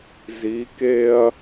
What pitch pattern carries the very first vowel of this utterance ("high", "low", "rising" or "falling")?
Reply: rising